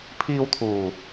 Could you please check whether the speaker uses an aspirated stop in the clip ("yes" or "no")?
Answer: yes